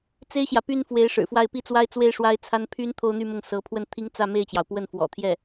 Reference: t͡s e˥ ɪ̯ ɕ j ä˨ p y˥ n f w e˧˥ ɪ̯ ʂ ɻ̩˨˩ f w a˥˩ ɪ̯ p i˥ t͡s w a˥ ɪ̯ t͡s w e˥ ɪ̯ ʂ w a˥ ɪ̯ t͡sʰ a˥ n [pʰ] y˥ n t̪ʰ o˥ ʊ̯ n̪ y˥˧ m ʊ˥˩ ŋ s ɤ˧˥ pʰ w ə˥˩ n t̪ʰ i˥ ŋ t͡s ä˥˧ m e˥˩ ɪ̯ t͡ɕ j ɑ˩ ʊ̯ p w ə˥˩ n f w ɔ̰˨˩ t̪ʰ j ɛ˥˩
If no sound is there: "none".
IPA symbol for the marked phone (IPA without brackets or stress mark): pʰ